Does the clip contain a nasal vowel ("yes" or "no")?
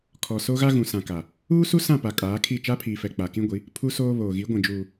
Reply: yes